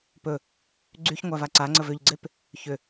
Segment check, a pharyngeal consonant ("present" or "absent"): absent